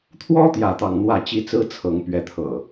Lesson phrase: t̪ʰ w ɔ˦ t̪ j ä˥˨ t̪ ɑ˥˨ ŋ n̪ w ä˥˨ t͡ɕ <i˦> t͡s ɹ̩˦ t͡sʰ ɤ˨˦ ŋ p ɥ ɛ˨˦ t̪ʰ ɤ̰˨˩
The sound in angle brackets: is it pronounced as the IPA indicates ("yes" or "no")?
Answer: yes